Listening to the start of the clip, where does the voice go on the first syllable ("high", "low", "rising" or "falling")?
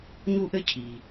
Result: high